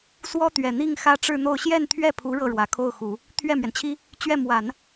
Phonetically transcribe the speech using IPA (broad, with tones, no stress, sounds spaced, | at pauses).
s w ɔ˥ t̪ ɥ ɛ˨˩ n̪ i˥˩ ŋ x ä˥ ʈ͡ʂ ɻ̩˥˧ n̪ o˥˧ ʊ̯ ɕ j ɛ˥˧ n t̪ʰ ɥ ɛ˥˩ pʰ u˧˥ ɻ ɤ˥˩ ɻ w ä˨˩ kʰ o˥˩ ʊ̯ x u˨˩˦ | t̪ʰ ɥ ɛ˥˩ m ɥ ɛ˩ n t͡ɕʰ i˥ | t͡ɕ ɥ ɛ˥˩ m w a˨˩˦ n